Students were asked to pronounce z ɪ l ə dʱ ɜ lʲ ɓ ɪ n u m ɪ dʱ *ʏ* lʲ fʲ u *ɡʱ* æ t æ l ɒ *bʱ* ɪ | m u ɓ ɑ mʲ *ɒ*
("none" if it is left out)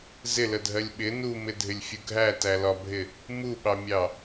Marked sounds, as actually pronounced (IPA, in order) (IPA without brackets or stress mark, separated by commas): ɪ, ɡʱ, bʱ, ɑ